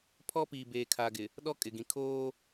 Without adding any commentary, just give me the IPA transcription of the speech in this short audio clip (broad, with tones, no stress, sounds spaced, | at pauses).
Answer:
pʰ ɔ˦ p iː˨ b eː˨ kʰ aː˨ ɡ ɪ˨ | ɗ ɔ˦ kʼ ɪ˨ ɡ ĩ˨ kʰ oː˦